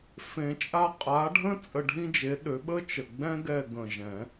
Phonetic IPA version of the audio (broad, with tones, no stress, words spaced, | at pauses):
fẽ˨˩˦t͡ʃʼa˦˨ qʼa˨˥ɖʱə̃˥ t͡sʼə˦˨ɖʱĩ˥d͡ʒe˨˥ɗø˨˥ ɓə˥t͡ʃə˨˩ɡ͡bɛ̃˥ɡɛ˦˨ ɡə̃˨˩ʒɛ̃˨˩˦